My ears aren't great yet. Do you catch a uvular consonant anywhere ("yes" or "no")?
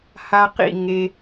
yes